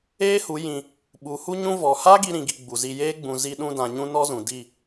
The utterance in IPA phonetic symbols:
eː˦ h u˨˦ j ĩ˧ | ɓ u˨˦ h u˦ ɲ ũ˦ v ɔ˨ h a˦ ɡ i˦ ɾ ĩ˧ ɡ i˧ ɡ͡b u˨ z i˧ j eː˦ ɡ͡b ũ˨ z i˧ ɗ ũ˧ d ã˨ ɲ ũ˦ n ɔ˦ z ũ˨ d i˦˨

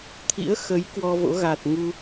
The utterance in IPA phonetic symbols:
t̪ʰ ḭ˧˥ ə̯ x ə˨˦ j k w ɔ˧ v o̰˧˥ ɣ a˨˩ t̚ ŋ u˧

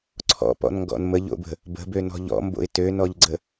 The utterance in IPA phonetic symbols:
ǀʰ ɔ̰ p ɔ̰ n ŋ ɡ ɔ̰ n m ə ʎ o̰ b ə̤ | b ə̤ b ø n ɔ̤ ʎ ɔ̰ m b o̰ ɪ̯ t ø n ɔ ʎ ɡ͡ǀ ə

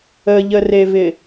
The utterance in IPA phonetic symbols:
ə ʎ ə r e v ɪ

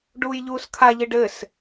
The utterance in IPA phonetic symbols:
ɖ uː j ʎ uː s kʰ a ʎ ɨ ɖ ɘ s

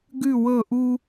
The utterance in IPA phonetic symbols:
ɡ ʉ˧˩ w ɤ˧˩ ʔ u˧

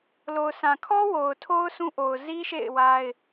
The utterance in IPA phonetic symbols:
l o˨ ʊ̯ s ã˨ kʰ ɔ˦ w o˨ ʊ̯ tʰ o˦ ʊ̯ s ũ˦ ʔ o˨ ʊ̯ z i˦ ʃ ḛ˦˨ ɪ̯ w a˦ ɪ̯

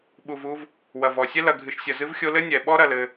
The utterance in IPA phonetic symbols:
ɓ u˩ v u˨ v | w ɐ˩ v ɔ˩ sʲ ɛ˦ l ɐ˨ ɡʱ ɨ˨ ʃ sʲ ɐ˨ z ɨ˦ v xʲ o˦ l ɘ˥ nʲ ɛ˩ ɓ ɔ˥ ɾ ɐ˨ l ɘ˨

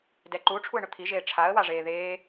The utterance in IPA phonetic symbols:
d ɛ ǃ u ʈ͡ʂʰ u ə̯ ɳ ʊ t̪ʰ i ʒ eː ʈ͡ʂʰ a ə̯ w a ʐ eː ð eː

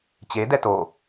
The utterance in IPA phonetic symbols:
t͡ɕ e d ɛ t o

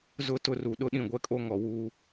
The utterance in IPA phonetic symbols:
z ʊ˦˨ t ʊ˦ r u˨ ɗ ʊ˦ ɗ ĩ˦˨ ɡʷ ɛ˦ kʼ o˦ ŋ ɔ˨ w uː˦

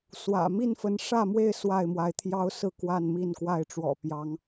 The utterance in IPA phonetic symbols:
s w ä̰˨˩ m i˥˨ n f ə˨˦ n ʂ ä˥˨ m w e˥˨ ɪ̯ s w a˥˨ ɪ̯ m w a˨˦ ɪ̯ t̪ʰ j ɑ˦ ʊ̯ s ɹ̩˥˨ k w a˥˨ n m i˥˨ n k w a˥˨ ɪ̯ ʈ͡ʂ w ɔ̰˨˩ p j ɑ˨˦ ŋ

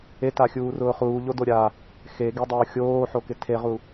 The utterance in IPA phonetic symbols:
e t a xʲ uː r ʊː χ uː ʎ o d o ɾʲ a | x e ɡ e dˤ ʊː xʲ oː ħ o k ɪ tʰ e ʁ u

